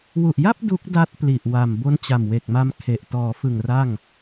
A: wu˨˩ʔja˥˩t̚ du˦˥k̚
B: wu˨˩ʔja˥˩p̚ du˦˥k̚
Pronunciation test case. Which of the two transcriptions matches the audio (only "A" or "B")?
B